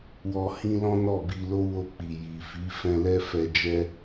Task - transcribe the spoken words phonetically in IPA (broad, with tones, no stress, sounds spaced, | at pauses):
w ɔ˧ h ĩ˦ l ɔ̃˦ n ɔ˦˨ b i˧ l o˦ w o˧ k͡p i˨ j i˨ f i˨˦ f ɛ̃˧ l ɛ˦ f ɛ˧ d͡ʒ ɛ˦